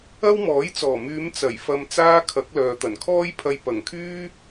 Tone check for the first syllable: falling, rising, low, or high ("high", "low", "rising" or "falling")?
high